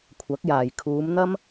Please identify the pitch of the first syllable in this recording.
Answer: rising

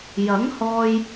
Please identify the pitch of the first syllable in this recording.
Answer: rising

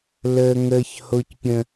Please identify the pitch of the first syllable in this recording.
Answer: high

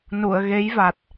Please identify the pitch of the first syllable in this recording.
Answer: low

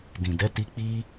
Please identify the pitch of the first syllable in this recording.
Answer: low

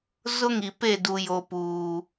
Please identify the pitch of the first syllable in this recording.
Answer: high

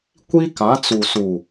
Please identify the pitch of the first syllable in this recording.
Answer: high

